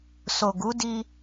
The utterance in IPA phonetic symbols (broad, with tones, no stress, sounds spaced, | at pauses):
s o˨ ɡ u˨˦ d i˧